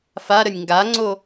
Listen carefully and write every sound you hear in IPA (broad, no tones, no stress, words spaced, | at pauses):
faɾənʲ ŋɡaŋ͡ǀo